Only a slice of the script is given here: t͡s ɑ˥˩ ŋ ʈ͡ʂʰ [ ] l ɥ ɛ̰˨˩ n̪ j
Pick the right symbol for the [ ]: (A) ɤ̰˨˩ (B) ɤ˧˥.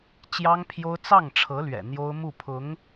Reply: B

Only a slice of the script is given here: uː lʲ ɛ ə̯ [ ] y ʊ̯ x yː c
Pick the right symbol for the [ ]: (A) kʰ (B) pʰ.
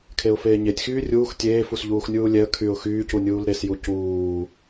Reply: A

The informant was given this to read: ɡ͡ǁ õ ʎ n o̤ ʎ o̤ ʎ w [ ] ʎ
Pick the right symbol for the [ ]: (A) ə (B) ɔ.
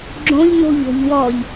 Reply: B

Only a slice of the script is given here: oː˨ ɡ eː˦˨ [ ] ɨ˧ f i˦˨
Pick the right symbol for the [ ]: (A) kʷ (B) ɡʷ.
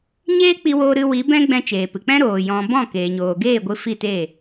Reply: B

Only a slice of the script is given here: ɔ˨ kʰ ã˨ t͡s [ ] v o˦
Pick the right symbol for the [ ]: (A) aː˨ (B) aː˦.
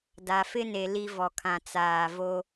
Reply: A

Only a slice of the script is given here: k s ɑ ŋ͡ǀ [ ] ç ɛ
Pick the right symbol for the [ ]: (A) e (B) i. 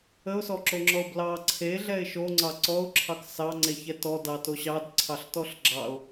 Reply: A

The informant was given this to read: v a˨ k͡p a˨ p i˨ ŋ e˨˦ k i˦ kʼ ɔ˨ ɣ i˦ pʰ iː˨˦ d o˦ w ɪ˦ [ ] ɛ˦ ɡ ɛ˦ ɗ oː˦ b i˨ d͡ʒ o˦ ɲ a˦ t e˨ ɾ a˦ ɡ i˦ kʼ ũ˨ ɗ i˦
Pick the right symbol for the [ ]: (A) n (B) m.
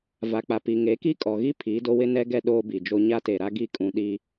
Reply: A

